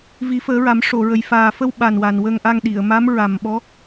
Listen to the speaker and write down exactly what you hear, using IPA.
vi˨˩˦fəː˨˩˦ ɹa˨˩˦mʂo˨˩˨ɹə˨˩j faː˨˩fə˧w ɓa˨˩nwa˨˩n wə˧ŋʔa˧ŋɗi˨˩˨ə̯ ma˧˥mɹa˨˩mɓɔ˧˥

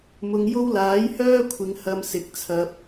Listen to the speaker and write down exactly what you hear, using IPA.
mʊ˨˧ŋjo˥w laː˨˥jhœː˥ kʷʰɪ˨˧ŋhɐ˧msɪ˨˥k̚t͡sʰɐ˧p̚

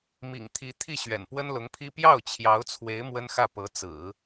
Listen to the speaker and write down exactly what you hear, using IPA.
mḭ˨˩ŋt̪ʰi˧˥ t̪ʰi˥˩ ɕɥɛ̰˨˩npwə˥nlʊ˧˥ŋpʰi˥ pjɑ˥˩ʊ̯t͡ɕʰjɑ˧˥ʊ̯t͡sʰwe˧˥ɪ̯ mwə˥nxä˥˩ pɤ˧˥t͡sɹ̩˨˩˦

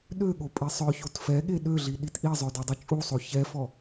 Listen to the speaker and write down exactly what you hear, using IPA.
ɗøɠopʼe sˤœçot fɛɠe ɗøɮiɗit ʔizˤœdodˤo t͡ʃʼusˤo çɛfɔ

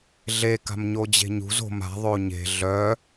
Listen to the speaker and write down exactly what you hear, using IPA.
ɮe ka̤mɲod͡ʑe̤ɲṳz o̤m a̤ ðˤoɲe̤ ɮœ

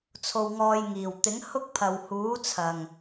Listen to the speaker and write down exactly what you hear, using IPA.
t͡sʰo˧wŋɔː˧jŋiː˨˩w t̪ɪ˨˥ŋhʊ˥k̚ pʰɐ˨whuː˨˥ t͡sʰɐ˨˩ŋ

